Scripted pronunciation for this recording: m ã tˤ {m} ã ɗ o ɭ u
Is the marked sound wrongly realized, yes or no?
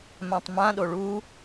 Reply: no